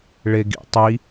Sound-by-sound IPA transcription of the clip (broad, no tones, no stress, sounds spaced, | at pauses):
ɭ e ɡ ḭ tˤ i